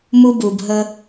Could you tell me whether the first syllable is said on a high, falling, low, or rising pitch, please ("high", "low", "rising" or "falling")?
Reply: high